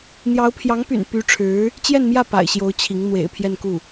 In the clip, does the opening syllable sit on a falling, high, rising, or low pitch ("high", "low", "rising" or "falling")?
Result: rising